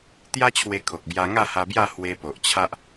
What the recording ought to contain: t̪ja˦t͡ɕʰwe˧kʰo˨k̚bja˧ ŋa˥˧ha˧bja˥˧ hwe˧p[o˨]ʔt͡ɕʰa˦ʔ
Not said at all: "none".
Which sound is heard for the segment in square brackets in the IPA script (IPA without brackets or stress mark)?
o˨